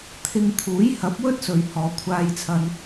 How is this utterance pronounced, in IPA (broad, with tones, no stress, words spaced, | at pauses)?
t̪ʰɪ˧ŋ t̪ʰuː˨˥jhɐ˨˥p̚ wɵ˥t̚sɵ˨ɥ hɔː˨˧kʷʰaː˧jt͡sʰɐ˧n